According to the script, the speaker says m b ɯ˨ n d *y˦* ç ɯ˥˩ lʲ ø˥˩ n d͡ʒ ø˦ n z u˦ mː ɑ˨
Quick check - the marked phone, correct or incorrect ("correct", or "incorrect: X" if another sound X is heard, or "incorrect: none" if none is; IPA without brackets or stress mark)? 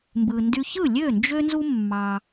correct